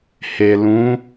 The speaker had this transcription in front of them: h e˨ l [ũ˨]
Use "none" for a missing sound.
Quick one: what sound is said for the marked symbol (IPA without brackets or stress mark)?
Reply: ũ˨˦